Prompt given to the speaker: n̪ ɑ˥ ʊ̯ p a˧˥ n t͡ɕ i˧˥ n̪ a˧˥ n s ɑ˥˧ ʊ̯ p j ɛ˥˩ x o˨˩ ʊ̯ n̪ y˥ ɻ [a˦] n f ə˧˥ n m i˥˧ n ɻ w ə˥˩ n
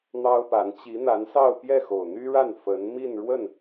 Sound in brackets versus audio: incorrect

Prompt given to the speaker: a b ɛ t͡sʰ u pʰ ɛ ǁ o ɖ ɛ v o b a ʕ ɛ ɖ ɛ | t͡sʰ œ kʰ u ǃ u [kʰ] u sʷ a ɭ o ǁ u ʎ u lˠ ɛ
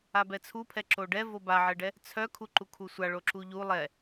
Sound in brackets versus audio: correct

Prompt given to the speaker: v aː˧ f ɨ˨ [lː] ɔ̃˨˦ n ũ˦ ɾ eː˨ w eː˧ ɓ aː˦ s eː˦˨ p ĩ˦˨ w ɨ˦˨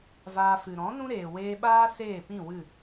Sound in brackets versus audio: incorrect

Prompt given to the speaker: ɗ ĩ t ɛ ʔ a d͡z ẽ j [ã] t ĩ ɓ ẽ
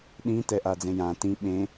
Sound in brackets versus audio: correct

